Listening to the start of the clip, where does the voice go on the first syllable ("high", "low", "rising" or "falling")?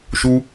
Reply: high